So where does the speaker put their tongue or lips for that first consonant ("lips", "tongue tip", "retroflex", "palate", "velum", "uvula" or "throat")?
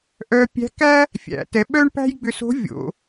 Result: throat